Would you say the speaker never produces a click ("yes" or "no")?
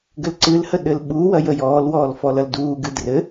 no